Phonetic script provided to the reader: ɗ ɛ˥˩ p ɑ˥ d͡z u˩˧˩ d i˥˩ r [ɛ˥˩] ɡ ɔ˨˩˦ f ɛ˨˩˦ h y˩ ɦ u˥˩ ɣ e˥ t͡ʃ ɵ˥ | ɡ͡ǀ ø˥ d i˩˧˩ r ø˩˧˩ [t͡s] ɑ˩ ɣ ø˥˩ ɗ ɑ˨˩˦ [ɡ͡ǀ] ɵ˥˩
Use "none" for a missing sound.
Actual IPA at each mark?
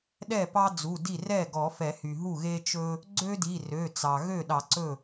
ɛ˥˩, t͡s, ǀ

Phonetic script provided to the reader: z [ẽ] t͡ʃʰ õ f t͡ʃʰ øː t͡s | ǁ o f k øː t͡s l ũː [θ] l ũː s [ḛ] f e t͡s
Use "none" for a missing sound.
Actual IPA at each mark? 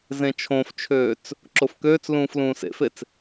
ẽ, f, ḛ

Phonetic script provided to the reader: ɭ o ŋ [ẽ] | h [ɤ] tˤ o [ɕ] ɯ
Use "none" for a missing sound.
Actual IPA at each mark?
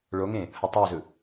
ẽ, ɤ, z

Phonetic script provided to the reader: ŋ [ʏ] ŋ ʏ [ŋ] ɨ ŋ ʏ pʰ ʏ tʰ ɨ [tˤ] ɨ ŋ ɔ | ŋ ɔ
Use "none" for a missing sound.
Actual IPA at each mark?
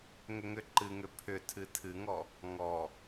ʏ, ǃ, tʰ

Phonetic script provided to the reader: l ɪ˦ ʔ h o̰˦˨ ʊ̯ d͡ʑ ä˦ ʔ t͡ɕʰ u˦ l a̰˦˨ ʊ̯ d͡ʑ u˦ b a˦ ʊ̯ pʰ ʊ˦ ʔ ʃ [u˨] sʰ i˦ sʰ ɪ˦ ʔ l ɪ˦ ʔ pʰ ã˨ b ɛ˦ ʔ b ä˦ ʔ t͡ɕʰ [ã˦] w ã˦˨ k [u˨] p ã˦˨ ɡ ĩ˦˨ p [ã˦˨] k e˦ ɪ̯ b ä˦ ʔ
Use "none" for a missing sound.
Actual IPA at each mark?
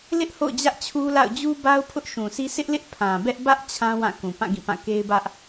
ũ˨, ã˦, ũ˨, ã˦˨

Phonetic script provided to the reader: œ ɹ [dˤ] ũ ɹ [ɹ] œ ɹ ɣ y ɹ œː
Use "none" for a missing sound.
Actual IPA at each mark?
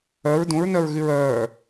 d, n

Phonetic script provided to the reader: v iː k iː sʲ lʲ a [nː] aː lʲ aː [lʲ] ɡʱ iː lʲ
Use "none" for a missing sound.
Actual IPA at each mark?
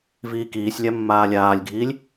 mː, lʲ

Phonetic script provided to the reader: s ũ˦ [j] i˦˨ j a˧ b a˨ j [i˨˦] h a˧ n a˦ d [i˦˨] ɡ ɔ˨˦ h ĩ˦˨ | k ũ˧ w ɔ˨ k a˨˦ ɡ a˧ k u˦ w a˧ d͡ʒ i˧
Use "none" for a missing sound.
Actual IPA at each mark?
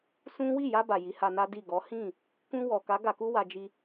w, i˨˦, i˦˨

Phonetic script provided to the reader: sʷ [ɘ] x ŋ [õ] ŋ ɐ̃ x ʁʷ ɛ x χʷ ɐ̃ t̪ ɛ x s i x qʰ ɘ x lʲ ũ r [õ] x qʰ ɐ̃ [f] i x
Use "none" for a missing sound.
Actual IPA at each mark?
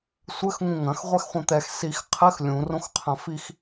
ɘ, ũ, õ, f

